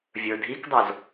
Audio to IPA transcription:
vʲ ə˞ dʱ i k dˤ o z

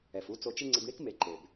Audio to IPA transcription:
ɛ˩ f u˧ t͡s o˧ t͡ʃ ɪ˥ ŋ͡ǀ ɪ˧ b ɳ i˥ k m e˩˥ ǃ e˩ b

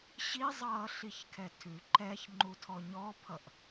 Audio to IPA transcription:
ɕ i zˤ ʌː ɬ i ç kʰ ɛ tʰ ʉ ǃ ɛ ç ŋ͡ǃ u tʰ ɔ ɲ ɔ pʰ ʌ ʔ

